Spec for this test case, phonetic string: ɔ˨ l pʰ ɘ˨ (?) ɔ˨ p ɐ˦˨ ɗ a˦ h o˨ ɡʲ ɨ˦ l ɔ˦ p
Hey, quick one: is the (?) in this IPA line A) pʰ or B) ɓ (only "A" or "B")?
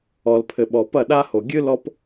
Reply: B